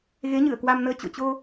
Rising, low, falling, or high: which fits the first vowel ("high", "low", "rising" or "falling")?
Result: rising